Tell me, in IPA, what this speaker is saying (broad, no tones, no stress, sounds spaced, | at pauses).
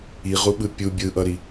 i ʁ u ɓ ɯ pʲ u bʲ ɯ ʔ ʌ ɾ i